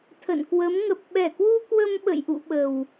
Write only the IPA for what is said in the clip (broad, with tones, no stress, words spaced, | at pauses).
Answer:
t̪ʰə̰˧˨nkwə˨˦m ŋə˨˩p̚ɓɛ˧˩kwu˧ kwə˧mɓə̰˧˨jʔṵ˧˨ ɓə˨˩w